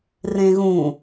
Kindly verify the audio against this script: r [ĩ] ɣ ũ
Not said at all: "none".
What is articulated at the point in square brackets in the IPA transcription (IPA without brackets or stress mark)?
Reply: ẽ